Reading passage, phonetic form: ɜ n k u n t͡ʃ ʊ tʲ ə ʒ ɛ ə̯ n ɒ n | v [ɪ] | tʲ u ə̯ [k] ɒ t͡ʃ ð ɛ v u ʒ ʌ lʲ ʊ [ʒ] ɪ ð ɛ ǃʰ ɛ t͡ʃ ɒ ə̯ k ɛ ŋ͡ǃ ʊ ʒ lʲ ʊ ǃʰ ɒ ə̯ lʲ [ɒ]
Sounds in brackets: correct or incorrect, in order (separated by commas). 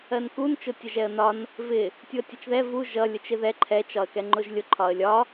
correct, incorrect, incorrect, correct